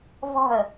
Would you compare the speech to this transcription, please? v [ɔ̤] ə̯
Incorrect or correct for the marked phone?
correct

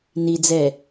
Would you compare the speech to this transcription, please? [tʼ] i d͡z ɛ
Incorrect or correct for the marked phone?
incorrect: n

